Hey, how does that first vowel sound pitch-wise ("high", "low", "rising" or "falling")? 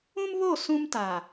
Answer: high